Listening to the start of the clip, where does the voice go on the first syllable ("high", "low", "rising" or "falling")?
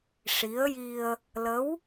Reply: rising